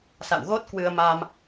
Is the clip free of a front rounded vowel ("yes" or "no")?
yes